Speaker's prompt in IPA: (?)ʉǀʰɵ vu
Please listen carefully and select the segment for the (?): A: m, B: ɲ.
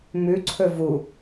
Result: A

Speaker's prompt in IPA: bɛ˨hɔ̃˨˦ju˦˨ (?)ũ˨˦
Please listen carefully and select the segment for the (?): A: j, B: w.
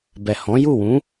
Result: B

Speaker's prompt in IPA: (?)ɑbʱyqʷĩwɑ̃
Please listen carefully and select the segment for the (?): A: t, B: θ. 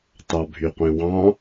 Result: A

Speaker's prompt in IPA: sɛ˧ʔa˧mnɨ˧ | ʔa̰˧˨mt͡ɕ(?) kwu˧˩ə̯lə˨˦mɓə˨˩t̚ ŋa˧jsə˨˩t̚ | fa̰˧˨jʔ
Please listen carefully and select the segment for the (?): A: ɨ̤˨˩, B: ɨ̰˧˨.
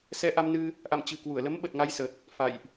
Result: A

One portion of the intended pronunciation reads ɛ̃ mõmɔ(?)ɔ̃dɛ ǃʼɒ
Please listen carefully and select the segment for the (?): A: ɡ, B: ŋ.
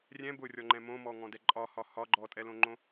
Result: B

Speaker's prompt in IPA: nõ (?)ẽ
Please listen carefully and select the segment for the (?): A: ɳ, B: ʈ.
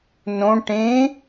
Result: B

